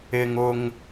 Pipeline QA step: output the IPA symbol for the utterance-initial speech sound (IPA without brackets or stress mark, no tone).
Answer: ɪ